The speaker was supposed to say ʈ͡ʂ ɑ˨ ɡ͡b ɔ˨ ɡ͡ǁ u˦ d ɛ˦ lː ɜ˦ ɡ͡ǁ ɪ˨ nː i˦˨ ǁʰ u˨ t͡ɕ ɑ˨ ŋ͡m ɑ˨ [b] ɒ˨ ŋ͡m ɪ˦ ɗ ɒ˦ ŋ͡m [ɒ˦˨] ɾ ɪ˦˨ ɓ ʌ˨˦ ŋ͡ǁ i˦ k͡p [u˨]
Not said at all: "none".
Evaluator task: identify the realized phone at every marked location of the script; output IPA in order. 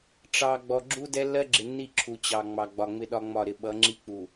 ɡ͡b, ɒ˦˨, u˨

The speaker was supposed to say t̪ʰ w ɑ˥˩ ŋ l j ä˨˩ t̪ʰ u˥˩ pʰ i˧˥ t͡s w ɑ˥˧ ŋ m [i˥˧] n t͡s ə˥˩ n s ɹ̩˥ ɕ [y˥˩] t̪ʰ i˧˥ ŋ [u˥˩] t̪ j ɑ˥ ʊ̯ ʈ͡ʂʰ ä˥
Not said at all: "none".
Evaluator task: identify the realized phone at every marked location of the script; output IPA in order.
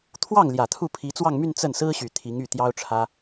y˥˧, y˨˩, y˥˩

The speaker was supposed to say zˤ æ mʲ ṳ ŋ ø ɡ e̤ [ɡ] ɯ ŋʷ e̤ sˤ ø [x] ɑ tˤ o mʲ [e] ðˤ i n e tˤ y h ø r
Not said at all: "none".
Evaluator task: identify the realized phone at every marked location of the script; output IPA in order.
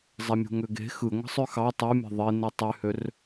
x, x, e̤

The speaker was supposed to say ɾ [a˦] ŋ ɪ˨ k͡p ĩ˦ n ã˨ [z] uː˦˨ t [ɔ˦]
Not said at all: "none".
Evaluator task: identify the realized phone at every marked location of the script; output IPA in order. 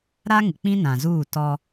a˦, z, ɔ˦

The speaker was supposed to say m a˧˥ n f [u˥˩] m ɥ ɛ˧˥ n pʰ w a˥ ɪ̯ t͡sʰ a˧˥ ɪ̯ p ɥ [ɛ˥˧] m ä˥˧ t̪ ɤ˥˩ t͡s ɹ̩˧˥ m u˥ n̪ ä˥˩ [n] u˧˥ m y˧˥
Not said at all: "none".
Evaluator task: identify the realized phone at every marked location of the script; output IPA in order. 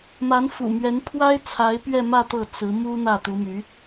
ṵ˨˩, ɛ˥˧, t̪

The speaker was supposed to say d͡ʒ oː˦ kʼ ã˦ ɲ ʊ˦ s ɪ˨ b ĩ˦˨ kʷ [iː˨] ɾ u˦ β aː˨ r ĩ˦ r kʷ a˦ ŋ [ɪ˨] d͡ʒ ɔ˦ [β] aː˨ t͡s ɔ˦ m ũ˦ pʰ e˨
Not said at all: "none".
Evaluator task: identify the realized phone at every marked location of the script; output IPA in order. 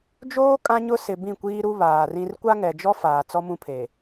iː˦, ɛ˨, f

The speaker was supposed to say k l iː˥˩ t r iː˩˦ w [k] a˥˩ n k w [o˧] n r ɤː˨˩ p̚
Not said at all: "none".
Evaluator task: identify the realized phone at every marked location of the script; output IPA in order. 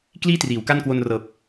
k, o˧

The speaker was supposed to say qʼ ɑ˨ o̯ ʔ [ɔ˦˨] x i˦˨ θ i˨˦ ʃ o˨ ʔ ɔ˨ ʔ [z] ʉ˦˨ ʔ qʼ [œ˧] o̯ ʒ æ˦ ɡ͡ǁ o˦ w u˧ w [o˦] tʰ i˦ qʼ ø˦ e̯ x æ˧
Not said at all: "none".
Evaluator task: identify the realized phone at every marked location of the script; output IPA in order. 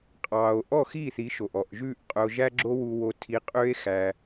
ɔ˦˨, ʒ, œ˧, o˦

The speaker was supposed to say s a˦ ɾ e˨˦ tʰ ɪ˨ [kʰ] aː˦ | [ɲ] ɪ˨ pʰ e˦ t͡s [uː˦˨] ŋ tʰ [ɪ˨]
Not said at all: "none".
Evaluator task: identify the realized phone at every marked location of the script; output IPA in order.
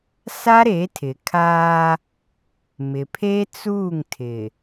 kʰ, m, uː˦˨, ɪ˨

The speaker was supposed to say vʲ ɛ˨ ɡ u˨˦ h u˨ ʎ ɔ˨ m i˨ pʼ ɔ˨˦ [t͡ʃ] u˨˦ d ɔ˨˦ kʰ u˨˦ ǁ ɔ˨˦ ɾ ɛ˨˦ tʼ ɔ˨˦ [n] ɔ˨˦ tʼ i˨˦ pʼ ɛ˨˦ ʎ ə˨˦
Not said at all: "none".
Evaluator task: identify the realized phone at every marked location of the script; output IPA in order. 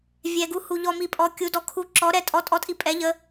kʲ, tʼ

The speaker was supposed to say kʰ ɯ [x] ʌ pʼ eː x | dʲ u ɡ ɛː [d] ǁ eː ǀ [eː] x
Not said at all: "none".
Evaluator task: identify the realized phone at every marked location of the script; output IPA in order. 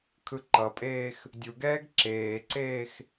ǃ, ɡ, eː

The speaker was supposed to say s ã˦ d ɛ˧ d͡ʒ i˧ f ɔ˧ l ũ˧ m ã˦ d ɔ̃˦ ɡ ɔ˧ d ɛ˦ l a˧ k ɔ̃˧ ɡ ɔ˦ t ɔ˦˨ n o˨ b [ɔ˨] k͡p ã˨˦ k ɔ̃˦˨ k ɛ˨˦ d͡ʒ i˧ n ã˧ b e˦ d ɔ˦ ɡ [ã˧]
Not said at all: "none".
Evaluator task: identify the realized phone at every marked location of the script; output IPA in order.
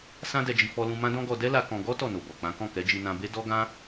ɔ˨, ã˦

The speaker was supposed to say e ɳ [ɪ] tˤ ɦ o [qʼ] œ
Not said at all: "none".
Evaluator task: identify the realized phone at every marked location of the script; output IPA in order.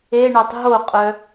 ɛ, qʼ

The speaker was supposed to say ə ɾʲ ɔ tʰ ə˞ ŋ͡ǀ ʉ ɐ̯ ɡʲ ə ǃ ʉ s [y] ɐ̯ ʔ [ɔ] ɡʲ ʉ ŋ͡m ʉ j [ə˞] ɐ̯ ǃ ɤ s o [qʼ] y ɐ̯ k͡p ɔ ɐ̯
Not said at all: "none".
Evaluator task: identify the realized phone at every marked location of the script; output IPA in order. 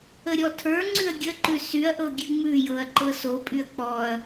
y, ɤ, ɤ, pʼ

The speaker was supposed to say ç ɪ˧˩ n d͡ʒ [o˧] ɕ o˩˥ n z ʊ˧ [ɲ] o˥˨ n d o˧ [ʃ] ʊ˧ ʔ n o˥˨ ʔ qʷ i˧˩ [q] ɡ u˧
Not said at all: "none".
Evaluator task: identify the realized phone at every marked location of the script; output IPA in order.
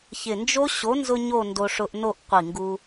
o˦˥, ɲ, ʂ, ŋ

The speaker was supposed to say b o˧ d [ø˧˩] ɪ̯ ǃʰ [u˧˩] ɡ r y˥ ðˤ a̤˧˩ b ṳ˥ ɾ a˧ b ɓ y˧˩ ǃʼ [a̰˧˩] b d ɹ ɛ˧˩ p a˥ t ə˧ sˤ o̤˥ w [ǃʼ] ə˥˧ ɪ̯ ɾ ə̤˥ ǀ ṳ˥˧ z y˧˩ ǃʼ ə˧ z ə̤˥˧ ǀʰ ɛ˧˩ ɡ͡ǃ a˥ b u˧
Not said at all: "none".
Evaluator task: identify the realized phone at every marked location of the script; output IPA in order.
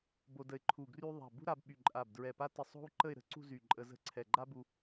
ə˧˩, u˧˩, a˧˩, ǃ

